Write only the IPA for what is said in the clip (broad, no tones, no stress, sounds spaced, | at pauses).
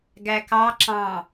ɡ æ k ɑ ǁ ɑ̃